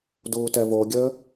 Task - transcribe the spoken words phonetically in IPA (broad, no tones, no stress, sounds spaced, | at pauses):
d uː t ɛ v o ɡʲ əː